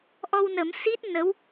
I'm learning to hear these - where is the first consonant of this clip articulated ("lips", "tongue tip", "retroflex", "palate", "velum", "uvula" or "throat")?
throat